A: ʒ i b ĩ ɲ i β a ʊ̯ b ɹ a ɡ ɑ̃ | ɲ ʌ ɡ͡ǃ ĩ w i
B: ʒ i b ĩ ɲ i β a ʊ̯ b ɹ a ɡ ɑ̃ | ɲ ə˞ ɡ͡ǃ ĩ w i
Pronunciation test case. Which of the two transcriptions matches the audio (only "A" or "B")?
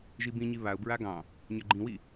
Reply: B